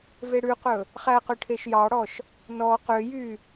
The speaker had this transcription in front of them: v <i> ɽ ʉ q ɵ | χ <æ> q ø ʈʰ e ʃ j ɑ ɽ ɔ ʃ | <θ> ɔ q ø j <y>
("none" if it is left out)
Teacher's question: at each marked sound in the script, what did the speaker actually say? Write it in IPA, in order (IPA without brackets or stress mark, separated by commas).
e, æ, n, y